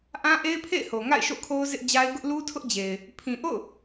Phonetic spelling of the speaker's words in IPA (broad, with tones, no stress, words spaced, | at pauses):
ʔã˦ʔe˦ɪ̯pʰḛ˦˨ɪ̯ho˨ ŋa̰˦˨ɪ̯ʃo̰˦˨kʰo˦ʊ̯ zɪ˦ʔd͡ʑa˦ɪ̯ ɡʊ˦ʔlu˦tʰʊ˦ʔd͡ʑe˨ɪ̯ | pʰĩ˨ʔo̰˦˨ʊ̯